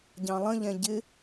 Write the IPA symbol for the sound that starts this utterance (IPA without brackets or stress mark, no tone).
ɟ